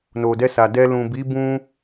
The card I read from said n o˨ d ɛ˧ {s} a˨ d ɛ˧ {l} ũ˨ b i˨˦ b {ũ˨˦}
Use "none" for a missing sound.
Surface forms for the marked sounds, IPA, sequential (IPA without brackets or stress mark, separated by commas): s, l, ũ˧